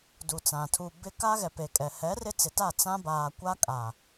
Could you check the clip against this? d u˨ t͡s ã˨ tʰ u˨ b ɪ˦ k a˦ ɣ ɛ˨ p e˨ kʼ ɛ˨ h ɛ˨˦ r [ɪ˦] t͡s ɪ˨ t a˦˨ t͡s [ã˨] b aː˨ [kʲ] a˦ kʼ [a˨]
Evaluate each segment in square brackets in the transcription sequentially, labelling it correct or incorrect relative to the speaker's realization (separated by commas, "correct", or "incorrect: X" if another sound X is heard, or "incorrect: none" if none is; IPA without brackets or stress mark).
correct, incorrect: ã˦, incorrect: kʷ, correct